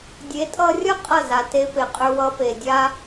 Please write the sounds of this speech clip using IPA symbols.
dʲ e˨˦ tʼ ʌ˧ rʲ ʌ˦ qʼ ʌ˦˨ z a˨ t e˧ p e˨ qʼ ʏ˧ w ʌ˧ p e˨ dʲ a˧

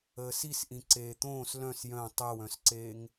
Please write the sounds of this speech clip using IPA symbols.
əː s i s ʔ ĩ ǀ eː t̪ õː s l œ̃ s j œ̃ tˤ e w œ̃ s ǀ eː ŋ

